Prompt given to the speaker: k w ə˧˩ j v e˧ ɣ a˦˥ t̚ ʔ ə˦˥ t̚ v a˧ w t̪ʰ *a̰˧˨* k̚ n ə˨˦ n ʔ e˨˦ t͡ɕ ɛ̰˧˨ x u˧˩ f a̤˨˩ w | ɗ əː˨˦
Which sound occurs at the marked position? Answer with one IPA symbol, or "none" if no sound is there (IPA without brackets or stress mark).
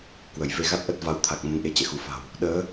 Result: a˨˩